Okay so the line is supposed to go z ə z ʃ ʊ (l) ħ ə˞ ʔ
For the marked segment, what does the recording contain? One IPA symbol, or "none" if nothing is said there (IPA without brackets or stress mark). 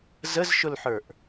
l